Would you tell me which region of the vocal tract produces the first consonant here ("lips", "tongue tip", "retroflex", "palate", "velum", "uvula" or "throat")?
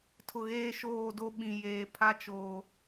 tongue tip